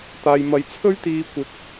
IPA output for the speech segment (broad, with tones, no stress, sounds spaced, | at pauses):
t̪ aː˨ j m ɐ˨ j t͡sʰ ɵ˥ ɥ t̪ iː˧ kʷ ɪ˧ k̚